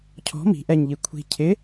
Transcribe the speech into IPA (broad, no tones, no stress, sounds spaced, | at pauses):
cʰ ɔ̤ m i̤ ʔ ɛ ɲ ʎ i kʷʰ i̤ cʰ ɪ